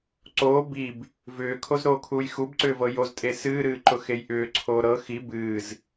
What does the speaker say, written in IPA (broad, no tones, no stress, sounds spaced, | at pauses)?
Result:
ǀ oː b i b | v ʏː kʰ o z ɾ oː kʰ uː j x u b ǀ ʏː v ɤ j o z tʼ e s ɨː ɾ ɨː ǃ ʊ x e j ʔ ʏː ǀʰ oː ɾ ɤ x i b ɨː z